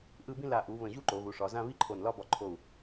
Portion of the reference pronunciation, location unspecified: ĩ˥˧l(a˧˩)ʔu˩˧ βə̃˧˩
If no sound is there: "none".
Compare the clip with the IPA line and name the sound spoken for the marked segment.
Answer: a˧˩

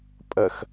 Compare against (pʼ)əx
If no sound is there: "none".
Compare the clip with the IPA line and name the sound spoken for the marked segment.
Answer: pʼ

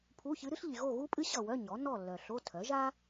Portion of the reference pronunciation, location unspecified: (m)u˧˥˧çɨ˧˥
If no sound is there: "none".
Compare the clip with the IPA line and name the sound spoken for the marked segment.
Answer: pʰ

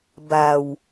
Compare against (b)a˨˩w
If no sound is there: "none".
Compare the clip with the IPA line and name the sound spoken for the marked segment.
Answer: b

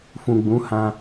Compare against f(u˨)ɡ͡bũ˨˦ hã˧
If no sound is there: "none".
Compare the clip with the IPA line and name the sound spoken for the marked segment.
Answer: ũ˨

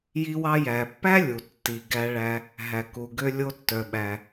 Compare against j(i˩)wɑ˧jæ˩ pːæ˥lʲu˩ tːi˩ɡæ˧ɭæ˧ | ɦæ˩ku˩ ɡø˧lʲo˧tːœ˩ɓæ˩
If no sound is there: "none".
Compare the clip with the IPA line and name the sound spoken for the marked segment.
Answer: i˧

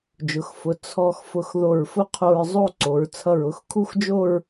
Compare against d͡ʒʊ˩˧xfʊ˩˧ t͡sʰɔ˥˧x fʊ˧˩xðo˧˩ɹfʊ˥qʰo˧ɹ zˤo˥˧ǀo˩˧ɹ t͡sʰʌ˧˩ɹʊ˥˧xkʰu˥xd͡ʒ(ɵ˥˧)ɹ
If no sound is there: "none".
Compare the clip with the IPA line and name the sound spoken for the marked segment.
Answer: o˥˧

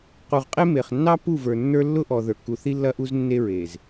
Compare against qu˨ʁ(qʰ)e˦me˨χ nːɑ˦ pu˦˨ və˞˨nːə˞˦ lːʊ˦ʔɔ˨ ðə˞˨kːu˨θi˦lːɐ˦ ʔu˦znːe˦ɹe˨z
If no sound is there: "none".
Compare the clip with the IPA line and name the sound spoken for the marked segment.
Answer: qʼ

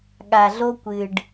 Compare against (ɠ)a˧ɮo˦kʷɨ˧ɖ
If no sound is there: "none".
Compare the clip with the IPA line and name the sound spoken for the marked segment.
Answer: ɠ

